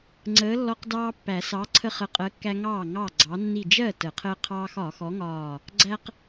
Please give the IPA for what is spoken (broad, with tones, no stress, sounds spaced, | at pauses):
ŋ͡ǀ əː˨˥ lː ɔ˦ q d ɑː˦ pː æ˨˩˦ s ɑ˨˥ ǀʰ ə˦ χ ə˨˥ qʼ ɜ˨˥ kː æ˦ ŋ ɑː˥˩ ŋ ɑ˥˩ ɡ͡ǀ ɑ˨˥ nː i˧˩ d͡ʒ ɜ˥˩ t ə˨˩˦ qʰ əː˦ qʰ ɑː˦ x ɒː˨˩˦ x ɔ˨˥ ŋ ɒː˧˩ | ɡ͡ǀ æ˦ q